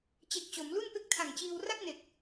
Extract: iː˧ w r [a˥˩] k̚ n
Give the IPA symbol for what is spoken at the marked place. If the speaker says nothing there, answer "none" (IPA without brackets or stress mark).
a˥˩